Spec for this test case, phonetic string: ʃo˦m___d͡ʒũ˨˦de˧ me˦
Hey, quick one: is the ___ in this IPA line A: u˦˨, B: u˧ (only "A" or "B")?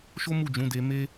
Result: A